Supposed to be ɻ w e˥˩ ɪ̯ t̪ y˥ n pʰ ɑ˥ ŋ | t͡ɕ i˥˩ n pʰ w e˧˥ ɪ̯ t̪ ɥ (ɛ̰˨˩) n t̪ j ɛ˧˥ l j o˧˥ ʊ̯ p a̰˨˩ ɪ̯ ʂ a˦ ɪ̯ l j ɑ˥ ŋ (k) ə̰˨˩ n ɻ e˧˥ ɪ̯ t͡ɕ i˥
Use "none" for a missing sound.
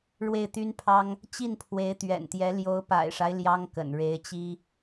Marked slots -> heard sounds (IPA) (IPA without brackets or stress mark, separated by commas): ɛ̰˨˩, k